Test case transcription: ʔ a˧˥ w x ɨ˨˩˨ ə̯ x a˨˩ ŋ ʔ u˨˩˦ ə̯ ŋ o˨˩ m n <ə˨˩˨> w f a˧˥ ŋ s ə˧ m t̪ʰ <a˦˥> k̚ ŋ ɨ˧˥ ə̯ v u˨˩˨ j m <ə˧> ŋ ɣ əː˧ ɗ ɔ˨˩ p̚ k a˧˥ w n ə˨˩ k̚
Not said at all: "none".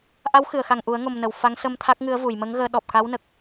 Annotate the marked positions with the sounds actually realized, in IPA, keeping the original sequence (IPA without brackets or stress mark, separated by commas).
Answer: ə˨˩˨, a˦˥, ə˧˥